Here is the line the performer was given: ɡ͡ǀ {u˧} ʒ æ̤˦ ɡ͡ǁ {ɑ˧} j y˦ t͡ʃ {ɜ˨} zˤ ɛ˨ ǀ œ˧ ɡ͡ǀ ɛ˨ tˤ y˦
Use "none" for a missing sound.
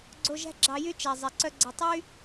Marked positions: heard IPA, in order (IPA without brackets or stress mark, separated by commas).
o˧, ɑ˧, æ˨